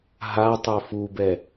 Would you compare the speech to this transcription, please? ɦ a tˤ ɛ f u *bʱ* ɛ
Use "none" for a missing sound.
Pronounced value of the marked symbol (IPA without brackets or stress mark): b